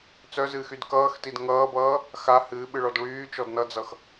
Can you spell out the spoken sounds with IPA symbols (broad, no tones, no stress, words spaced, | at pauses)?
t͡sœzɨːxyd kʌːxtid ŋʌːbʌː | xa hɨːɓɨɭɔd ɭyːt͡ʃɔd nʌd͡zʌx